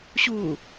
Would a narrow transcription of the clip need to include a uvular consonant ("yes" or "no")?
no